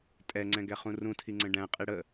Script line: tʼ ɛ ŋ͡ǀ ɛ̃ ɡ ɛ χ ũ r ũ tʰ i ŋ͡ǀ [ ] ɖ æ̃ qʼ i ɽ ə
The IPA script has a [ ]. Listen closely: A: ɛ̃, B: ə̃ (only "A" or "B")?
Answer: B